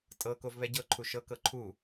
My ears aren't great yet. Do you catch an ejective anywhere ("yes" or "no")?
yes